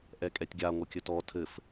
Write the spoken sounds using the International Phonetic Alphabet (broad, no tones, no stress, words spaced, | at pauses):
ʔɛkʼɛtʲɡʲa ŋʷɘkʲɘtɔ tʰɘf